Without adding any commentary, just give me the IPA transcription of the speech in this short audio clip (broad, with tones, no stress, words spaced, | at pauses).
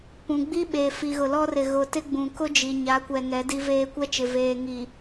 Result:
pũ˨ɡ͡bi˦ɓeː˨ fi˨ɣʊ˨lɔ˦rɪ˨ ɣʊ˨tɪ˦ɡ͡bũ˨ kʊ˦ d͡ʒi˨ɲa˨˦kʷɛ˨ ŋɛ˨˦di˦veː˦ kʷɛ˦t͡ʃɪ˨ veː˨ŋi˨